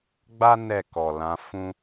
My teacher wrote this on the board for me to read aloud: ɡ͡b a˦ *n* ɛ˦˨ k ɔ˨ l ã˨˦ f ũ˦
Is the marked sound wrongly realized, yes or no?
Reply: no